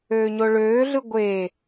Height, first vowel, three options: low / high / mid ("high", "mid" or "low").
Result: mid